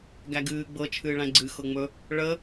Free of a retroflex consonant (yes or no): no